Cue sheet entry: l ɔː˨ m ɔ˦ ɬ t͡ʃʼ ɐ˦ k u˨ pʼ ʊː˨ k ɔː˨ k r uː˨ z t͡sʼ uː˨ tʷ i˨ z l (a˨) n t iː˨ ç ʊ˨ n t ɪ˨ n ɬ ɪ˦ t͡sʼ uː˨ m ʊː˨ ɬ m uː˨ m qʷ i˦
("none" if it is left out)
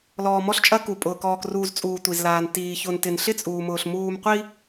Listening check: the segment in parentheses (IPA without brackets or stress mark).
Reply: aː˨